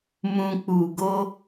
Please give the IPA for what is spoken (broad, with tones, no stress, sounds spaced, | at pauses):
m ũ˨ k͡p u˨ ɡ o˧